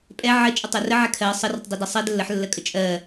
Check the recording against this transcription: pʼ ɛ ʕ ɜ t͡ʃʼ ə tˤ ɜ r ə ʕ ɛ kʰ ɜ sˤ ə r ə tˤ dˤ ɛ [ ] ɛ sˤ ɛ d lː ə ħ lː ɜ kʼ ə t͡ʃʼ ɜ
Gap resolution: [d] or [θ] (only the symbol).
d